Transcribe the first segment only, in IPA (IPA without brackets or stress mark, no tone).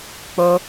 k͡p